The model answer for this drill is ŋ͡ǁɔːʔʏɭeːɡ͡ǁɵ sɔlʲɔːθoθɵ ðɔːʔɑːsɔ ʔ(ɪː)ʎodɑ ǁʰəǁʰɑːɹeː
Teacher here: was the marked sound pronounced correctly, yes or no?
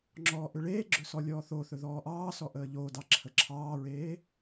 no